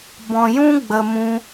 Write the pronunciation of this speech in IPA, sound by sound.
b ɔ̃˨ j ũ˧ ɡ͡b ə˨ m ũ˧

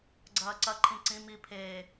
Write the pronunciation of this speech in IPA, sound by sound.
ɡ͡ǀ ɐː ǀ ɐ ǃʰ ĩ ǀ ĩ m i pʰ eː

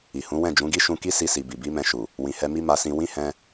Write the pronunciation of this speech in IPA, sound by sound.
i˨ h ũ˨˦ w ɛ̃˦˨ d͡ʒ ũ˨˦ ɡ i˦ ʃ ũ˧ k i˦ s i˧ s i˨ b i˨ b i˨˦ m ɛ̃˧ ʃ u˨ | w ĩ˨ h ɛ˧ m i˦ m a˧ s ĩ˧ w ĩ˦ h ɛ̃˧

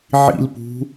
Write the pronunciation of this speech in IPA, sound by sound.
ʕ ḭ l p ṳ

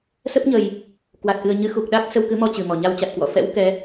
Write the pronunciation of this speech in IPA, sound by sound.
s ə˦˥ p̚ ɲ ə˨˩ j | k w a˨˩ t̚ ʔ ɨ˨˩ ə̯ ɲ ɨ˨˦ x u˨˩ k̚ ɗ a˦˥ k̚ s ə˧ w k ɨ˨˦ m ɔ˧ t͡ɕ ɨ˨˩ m ɔ˧˩ ɲ a˧ w t͡ɕ a˨˩ t̚ k w ɔ̰˧˨ f ɛ̰˧˥ w k ɛ˨˦

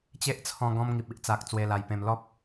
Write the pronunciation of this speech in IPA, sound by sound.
t͡ɕ e˦ ʔ t͡sʰ ɔ̃˧ ɡ ɔ̃˧ m ŋ i˨ p̚ i˦ ʔ t͡s a˨ k̚ t͡s w e˧ l a˧ j p ẽ˧ m l ɔ˦ p̚

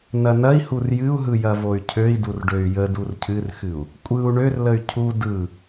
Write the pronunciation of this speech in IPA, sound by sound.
n ɐ n ɐ i̯ h u r j ɨ u̯ ɦ ɯ j ɐ v o y̯ cʰ ø i̯ d u r ɖ ø y̯ j ə d u r cʰ ɨ r x ɨ u̯ | kʷʼ ɯ u̯ ɳ ø r l ə y̯ cʰ u d ɯ

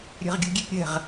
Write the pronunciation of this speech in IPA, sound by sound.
ɾʲ ɛ̤ ʁ ɡʲ ṳ ɡʲ e p ɾʲ ɛ̤ ʁ

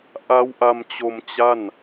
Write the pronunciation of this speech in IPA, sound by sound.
ʔ a˦˥ w ʔ a˧ m t͡ɕ o˧ m t͡ɕ a˥˩ n

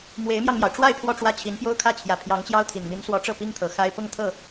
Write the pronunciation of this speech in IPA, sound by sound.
m w e˧˥ ɪ̯ m j ɑ˧ ŋ m j ɑ˩ ʊ̯ ʈ͡ʂ w a˥˧ ɪ̯ pʰ w ɔ˥˧ ʈ͡ʂ w ä˥˩ t͡ɕʰ i˧˥ n p j o˥ ʊ̯ kʰ ä˥˩ t͡ɕʰ j ä˨˩ pʰ j ɑ˧˥ ŋ t͡ɕ j ɑ˥ ʊ̯ t̪ʰ i˨˩ n m i˧˥ n s w ɔ˧˥ ʈ͡ʂ ɤ˥˩ p i˥ ŋ t̪ʰ ɤ˨˩ x a˥ ɪ̯ p ʊ˥˧ ŋ t̪ʰ ɤ˥˩

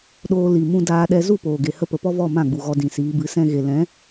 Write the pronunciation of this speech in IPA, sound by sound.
ɗ oː˧ l i˨ m ũ˧ d aː˧ ɗ ɛ˧ z u˦˨ p oː˨ ɡ e˨ h ə˧ p ə˨ p ɔ˦ v ɔ˦˨ m ã˦˨ ɡ͡b u˨ ɣ ɔ˧ d ĩ˨ s iː˨˦ b ɨ˨˦ s ɛ̃˧ ɣ e˨ l ɛ̃˨˦

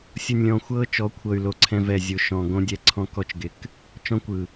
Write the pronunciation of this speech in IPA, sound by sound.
sʲ ʊ˨ nʲ lʲ ɔ̃˨ xʷ ɤː˦ t͡ʃ ɔ˨˦ kʷʰ ɤ˨ y̯ l o˨ ǀʰ ɛ̃˦ v ɛ˦˨ zʲ ʊ˦ ʃ ɔ̃˨ ɡ õ˦ dʲ ɛ˦ ǀʰ ɔ̃˦ k ɔ˦ t͡ʃ ɡ ɪ˨ k | t͡ʃ ɔ̃˦ kʷ ɯ˨

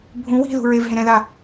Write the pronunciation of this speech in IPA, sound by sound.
bʱ ũ w i̤ ð ṳ ɹ e v ɦ ẽ ɾ ɛ̃ ð a

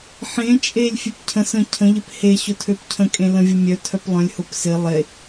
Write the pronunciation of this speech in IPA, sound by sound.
ħ ẽ t͡ʃʼ e lʲ fʲ e p cʰ ə̃ s ə̃ cʰ ə̃ ʎ ɪ p h e ɕ ʊ tʰ ø p cʰ ə̃ kʼ ẽ l ə̃ vʲ ʊ mʲ œ tʰ œ p lˠ œ̃ lʲ h ʊ p s ɪ lˠ e

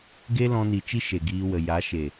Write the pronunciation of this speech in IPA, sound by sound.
ɡ e˦ l ɔ̃˧ n i˨ t͡ʃ i˦ ʃ e˨ ɡ iː˧ w ə˨ j a˨˦ ʃ e˨

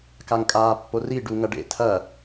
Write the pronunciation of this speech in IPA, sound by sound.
k a ŋ kʼ aː pː o r i ɖ u ŋ ɐ ɖ ḛ tʰ ɐ

